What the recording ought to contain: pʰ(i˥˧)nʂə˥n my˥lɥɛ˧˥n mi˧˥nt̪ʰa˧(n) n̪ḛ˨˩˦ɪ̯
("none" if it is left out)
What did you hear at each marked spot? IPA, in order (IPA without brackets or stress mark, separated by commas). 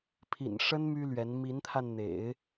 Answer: ḭ˨˩, n